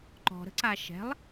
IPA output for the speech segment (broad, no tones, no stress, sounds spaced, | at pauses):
ǃ ɔ̤ ɾ ə̤ ǀ a ʃ ɛ̤ lˠ